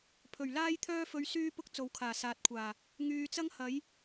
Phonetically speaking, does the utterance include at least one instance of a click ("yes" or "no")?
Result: no